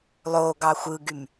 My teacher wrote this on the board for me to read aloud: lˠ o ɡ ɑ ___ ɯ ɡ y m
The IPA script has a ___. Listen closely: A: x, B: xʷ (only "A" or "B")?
B